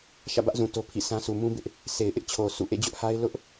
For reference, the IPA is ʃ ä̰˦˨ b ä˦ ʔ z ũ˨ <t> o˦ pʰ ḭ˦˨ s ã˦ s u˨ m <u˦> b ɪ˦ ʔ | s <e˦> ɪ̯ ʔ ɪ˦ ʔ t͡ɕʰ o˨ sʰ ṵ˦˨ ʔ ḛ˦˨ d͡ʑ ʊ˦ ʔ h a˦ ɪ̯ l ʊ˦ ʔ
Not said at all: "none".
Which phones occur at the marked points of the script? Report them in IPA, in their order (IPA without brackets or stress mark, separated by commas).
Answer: t, ũ˦, e˨